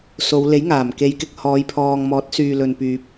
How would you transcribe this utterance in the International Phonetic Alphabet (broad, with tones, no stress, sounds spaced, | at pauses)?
s o˨˧ w l e˨˥ j ŋ aː˨˩ m k e˨˧ j k ɪ˨ k̚ h ɔː˨˧ j pʰ ɔː˨ ŋ m ɔː˨˥ t̚ s yː˨ l ɵ˨ n p yː˨ p̚